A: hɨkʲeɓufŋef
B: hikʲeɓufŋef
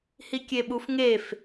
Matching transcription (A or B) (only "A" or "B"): B